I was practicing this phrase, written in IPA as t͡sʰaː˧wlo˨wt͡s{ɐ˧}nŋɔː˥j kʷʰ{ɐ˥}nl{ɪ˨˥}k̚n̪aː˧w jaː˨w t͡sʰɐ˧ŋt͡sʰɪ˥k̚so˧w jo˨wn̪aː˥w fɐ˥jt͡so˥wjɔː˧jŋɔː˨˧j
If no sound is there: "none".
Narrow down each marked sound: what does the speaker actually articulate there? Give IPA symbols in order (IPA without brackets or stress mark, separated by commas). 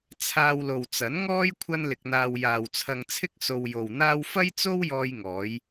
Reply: ɐ˨˥, ɐ˥, ɪ˧